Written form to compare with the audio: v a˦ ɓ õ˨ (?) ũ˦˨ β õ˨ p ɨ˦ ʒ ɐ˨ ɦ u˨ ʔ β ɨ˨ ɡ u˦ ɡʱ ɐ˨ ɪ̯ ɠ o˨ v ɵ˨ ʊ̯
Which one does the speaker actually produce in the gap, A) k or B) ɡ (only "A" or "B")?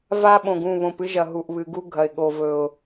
B